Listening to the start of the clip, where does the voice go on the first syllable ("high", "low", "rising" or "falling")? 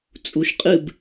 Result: rising